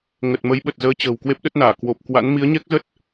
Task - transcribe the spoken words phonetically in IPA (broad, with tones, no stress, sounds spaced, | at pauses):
ŋ ə˨˩ t̚ m ə˨˦ j ɓ ə˨˩ t̚ z əː˨˦ t͡ɕ ə̤ː˨˩ w k w e˦˥ p̚ ɗ ə˦˥ t̚ n aː˧˩ k w o˨˩ p̚ k w a̰˧˥ n m i˨˦ ə̯ ɲ ɛ˦˥ k̚ z ə˦˥ t̚